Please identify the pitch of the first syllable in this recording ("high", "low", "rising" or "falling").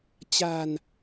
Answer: low